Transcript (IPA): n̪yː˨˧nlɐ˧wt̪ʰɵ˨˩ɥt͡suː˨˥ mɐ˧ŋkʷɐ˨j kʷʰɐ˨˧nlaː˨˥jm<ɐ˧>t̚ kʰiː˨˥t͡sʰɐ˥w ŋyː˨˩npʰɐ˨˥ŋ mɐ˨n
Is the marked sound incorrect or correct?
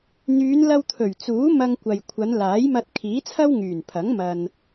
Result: correct